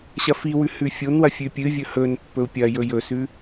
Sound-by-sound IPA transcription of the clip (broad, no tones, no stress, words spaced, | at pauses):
ɕɐfiwʉ hʉfʲonwɐ fʲʉpʲɨvʲɵ hɵn pːɵu̯pʲɐjɵ jɵsʉ